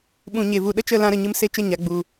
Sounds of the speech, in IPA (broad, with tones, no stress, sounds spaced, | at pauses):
ɓ ũ˨ ɲ e˨ v u˨ ɗ ə˦ t͡ʃ ə˦˨ l ã˧ ɾ ə˨ ɲ ɨ˧ m s e˧ t͡ʃ ə˦˨ ɲ a˨ ɡ͡b u˨